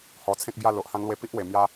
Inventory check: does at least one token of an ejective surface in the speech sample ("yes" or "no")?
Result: no